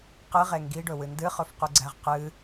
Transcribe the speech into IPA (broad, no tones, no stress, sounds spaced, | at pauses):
q ɨ ʁ e ŋ ɡ i ɖ ɵ w ɨ n d ɨ χ ɵ f q u ɡ͡ǀ æ ʁ q ɨ